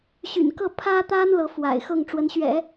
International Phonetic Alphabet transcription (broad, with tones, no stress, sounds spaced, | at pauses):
ɕ y̰˨˩ n k ɤ˥˩ pʰ ä˥ t̪ a˥ n l ɤ˧˥ f w a̰˨˩ ɪ̯ x ɤ˥˩ ŋ ʈ͡ʂ w ə˧˥ n ɕ ɥ ɛ̰˨˩˦